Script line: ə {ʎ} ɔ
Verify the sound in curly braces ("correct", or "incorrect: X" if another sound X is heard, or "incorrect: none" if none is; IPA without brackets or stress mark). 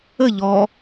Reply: correct